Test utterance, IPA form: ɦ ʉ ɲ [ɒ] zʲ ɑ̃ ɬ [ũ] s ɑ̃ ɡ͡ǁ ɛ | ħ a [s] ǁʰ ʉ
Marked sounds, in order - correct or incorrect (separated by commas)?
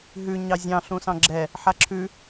incorrect, correct, incorrect